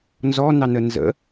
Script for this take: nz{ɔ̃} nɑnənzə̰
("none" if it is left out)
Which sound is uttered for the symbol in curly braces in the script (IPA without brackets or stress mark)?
ɔ